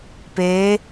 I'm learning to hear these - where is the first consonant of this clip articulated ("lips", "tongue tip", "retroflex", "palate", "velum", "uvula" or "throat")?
lips